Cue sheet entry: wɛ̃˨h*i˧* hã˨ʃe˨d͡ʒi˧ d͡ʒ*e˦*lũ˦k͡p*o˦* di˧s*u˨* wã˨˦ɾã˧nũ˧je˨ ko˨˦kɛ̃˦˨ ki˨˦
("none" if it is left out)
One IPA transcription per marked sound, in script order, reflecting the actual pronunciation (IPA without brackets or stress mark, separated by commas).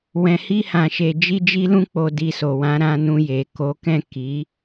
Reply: i˧, i˦, o˧, o˨